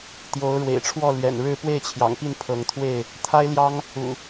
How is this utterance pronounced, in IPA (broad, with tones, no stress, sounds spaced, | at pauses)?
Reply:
t̪ j o˨˦ ʊ̯ ɻ w ḛ˨˩ ɪ̯ ʈ͡ʂʰ w ɔ˥˨ l ɥ ɛ̰˨˩ n ɻ ɻ̩˥˨ p w e˥˨ ɪ̯ t͡ɕʰ j ɑ̰˨˩ ŋ p i˥˨ n pʰ ɤ˨˦ ŋ t̪ʰ w e˥˨ ɪ̯ | t̪ʰ a˦ ɪ̯ l j ɑ˦ ŋ | ṵ˨˩